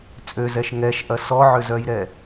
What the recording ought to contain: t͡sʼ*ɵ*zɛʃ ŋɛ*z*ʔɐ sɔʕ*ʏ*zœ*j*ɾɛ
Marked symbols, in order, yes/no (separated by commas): no, no, yes, yes